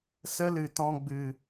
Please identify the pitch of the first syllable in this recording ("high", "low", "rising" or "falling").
high